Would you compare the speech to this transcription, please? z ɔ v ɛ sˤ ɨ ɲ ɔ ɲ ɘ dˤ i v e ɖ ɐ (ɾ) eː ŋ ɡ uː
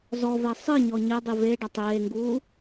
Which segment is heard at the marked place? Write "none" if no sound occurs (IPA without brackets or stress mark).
tˤ